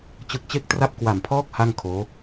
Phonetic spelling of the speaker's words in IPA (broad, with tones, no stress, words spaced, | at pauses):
t͡ɕɯ˦˥k̚t͡ɕe˥˩k̚tra˥˩p̚ kwa˨˩mpʰɔː˦˥k̚ ha˥˩ŋkʰoː˦˥